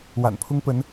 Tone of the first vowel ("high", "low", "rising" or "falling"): low